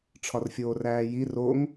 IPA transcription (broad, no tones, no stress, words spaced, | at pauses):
ʈ͡ʂʰɒrfʲoːræːji roŋ